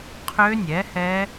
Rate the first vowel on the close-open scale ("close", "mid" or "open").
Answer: mid